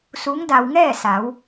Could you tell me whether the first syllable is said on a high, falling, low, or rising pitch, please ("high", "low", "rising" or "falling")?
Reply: rising